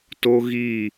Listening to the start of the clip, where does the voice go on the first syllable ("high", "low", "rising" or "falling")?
high